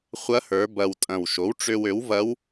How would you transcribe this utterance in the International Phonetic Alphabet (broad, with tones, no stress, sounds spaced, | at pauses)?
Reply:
χʷ ɐ˧˥ h ə˞˩˧ b ɐ˨˩ w tʼ ɐ̃˨˩ w ʃ o˩˥ w ʈ͡ʂ ø˧ w ø˩˥ w v ɐ˧˥ w